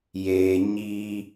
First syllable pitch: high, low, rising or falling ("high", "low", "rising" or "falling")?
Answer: low